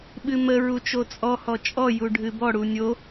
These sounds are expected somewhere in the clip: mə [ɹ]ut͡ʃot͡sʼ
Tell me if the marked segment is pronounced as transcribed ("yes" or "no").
yes